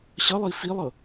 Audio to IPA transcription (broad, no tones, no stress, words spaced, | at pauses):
ɕʌlˠi filˠɤ